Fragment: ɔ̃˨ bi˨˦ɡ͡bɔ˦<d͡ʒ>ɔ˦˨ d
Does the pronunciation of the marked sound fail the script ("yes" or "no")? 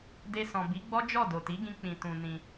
no